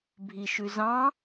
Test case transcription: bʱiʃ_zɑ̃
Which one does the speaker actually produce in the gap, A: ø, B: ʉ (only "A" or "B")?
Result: B